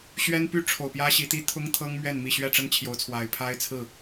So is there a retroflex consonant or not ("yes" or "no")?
yes